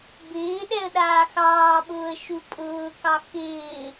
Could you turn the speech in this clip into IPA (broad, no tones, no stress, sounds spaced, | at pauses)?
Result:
b ɪː ɗ ɛ ə̯ ɗ aː x ɑː ɓ ʊː ə̯ ʃ u pʼ ʊː k ɑ x ɪː